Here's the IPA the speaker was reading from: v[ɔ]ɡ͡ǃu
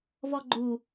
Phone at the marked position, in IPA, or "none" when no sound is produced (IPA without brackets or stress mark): ɔ